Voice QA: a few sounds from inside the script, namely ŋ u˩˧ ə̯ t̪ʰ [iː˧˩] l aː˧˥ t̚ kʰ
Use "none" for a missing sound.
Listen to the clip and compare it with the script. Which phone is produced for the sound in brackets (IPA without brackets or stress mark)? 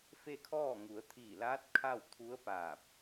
iː˧˩